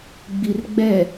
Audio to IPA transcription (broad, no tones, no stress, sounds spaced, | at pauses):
ɡ͡b i r ɡ͡b ɛ